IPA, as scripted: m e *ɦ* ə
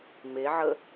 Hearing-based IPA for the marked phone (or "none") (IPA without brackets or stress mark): ʕ